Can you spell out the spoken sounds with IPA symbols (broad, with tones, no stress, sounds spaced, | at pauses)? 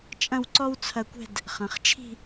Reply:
t͡ʃʼ ɐ̃˥˧ w ǀ ɔ˥ w t͡sʰ ɐ˧ kʷ ɛ̤˥˧ d | χ ɐ̃˩˧ χ t͡ʃʰ i̤˥˧